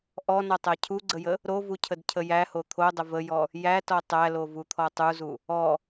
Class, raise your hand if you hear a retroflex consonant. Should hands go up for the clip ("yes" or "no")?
no